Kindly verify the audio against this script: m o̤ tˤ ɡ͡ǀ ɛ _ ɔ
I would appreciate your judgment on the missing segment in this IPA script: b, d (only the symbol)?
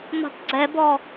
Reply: b